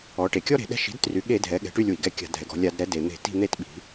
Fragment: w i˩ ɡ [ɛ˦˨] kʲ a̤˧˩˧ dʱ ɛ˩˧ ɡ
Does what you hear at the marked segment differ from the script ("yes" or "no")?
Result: no